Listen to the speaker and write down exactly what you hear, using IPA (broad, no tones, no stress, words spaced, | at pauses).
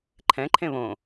ǃʰɛ̃ǃʰẽ βõ